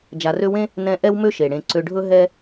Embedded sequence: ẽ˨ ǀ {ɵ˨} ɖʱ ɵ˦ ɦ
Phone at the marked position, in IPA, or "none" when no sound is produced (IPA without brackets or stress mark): ø˨